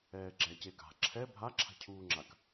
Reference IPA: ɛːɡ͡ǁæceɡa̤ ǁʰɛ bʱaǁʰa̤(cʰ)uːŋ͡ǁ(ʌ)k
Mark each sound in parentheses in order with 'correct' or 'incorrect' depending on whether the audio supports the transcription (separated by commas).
correct, incorrect